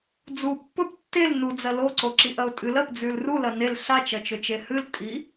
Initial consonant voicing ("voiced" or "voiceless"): voiced